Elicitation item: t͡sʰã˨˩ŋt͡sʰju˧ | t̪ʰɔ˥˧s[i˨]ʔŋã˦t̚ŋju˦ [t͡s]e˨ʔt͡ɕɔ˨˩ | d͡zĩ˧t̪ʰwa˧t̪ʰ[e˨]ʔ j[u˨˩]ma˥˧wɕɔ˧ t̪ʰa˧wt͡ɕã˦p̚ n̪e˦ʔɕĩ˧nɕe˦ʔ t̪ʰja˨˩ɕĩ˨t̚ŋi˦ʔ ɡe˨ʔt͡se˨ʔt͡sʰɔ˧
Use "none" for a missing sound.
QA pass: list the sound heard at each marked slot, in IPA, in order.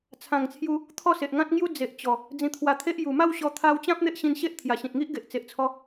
e˨, d͡z, e˦, u˨˩

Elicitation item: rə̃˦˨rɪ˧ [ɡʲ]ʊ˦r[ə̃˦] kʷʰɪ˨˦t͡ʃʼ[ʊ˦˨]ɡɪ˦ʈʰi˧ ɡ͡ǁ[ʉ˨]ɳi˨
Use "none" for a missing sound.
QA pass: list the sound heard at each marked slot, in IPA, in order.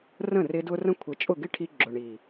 d, ə̃˦, ʊ˦˨, ʊ˨

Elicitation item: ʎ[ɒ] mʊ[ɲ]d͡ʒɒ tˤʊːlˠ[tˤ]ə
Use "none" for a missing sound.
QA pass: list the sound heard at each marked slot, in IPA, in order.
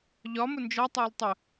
ɒ, n, tˤ

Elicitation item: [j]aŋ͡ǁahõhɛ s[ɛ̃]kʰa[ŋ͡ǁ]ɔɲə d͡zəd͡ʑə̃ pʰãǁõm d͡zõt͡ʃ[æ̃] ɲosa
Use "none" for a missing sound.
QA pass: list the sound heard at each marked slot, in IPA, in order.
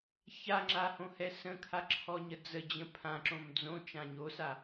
ç, ə̃, ǁʰ, ã

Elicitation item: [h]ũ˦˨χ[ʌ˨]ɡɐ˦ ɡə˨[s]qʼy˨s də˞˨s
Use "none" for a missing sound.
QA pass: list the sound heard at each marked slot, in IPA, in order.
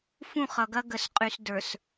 f, ʌ˨, s

